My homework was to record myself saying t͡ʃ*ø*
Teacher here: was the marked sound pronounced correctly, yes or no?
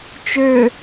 yes